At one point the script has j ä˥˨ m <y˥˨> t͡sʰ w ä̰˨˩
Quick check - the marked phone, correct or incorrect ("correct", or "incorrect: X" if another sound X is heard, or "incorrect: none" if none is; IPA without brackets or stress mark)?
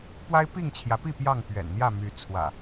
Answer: incorrect: y˨˦